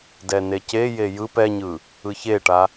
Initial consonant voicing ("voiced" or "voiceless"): voiced